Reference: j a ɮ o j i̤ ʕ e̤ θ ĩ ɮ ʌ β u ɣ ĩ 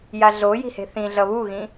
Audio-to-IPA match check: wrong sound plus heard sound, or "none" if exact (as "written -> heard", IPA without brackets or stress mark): ʕ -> h